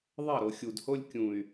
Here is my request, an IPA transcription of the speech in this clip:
ðˤɐ˦˨ɾo˨xʲu˨dho˦lʲ kʲũ˨y̯

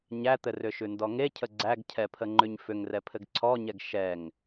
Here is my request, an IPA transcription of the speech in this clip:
ɲæt̪ɘrʏʃʉ ndɔŋecʰə ɡ͡ǀæɡcʰɛpʰə ŋ͡ǃʉɲfʏŋrɛ pʰɘɡǀʰɔɲɛɡ ʃɛŋ

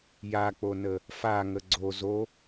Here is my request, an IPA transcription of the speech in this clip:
jak͡ponə | faŋə ɡ͡ǀo zo

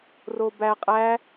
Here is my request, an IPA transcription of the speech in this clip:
robæ qʼæ

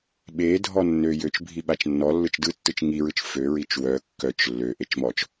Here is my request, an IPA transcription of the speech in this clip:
ɓe dʱɔnːø jøt͡ʃbʱi ɓat͡ʃnːɔ lːɯt͡ʃdɯtːɯt͡ʃ ŋiɹɯt͡ʃ fø ɹit͡ʃwœ kːœt͡ʃ lːø ʔet͡ʃmɔt͡ʃ

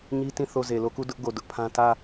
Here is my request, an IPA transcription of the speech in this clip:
ɲi˦tĩ˦˨ θo˦˨ ze˨lo˦˨ku˦˨ dʊ˦ʔɡo˨ dʊ˦ʔpʰã˦ tä˦˨

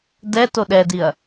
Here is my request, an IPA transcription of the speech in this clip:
dɛ toɗɛdiɐ̯

